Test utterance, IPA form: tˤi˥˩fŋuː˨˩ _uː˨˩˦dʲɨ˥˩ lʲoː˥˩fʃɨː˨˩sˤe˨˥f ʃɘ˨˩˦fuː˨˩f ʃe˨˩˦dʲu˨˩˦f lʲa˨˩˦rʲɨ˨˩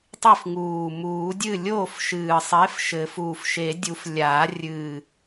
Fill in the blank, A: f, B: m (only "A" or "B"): B